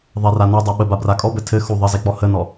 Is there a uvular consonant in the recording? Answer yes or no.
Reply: no